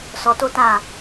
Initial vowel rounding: rounded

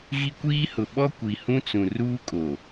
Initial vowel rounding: unrounded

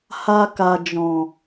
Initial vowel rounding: unrounded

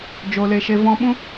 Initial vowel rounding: rounded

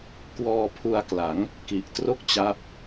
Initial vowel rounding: rounded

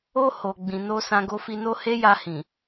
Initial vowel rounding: rounded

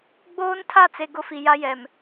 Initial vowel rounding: rounded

